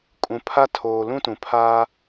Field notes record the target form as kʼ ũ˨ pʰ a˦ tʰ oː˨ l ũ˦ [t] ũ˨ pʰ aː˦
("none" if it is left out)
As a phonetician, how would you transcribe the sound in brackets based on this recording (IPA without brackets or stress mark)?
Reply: t